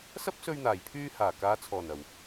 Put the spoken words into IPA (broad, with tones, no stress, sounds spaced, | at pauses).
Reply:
s ɐ˥ p̚ s ɵ˧ ɥ n̪ aː˨˩ j pʰ yː˧ h aː˨˩ k aː˨˧ t͡sʰ ɔː˨˩ n ɐ˨˩ w